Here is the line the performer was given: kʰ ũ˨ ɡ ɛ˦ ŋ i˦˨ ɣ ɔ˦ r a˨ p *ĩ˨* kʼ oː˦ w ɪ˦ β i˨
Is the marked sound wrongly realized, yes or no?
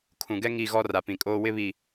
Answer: no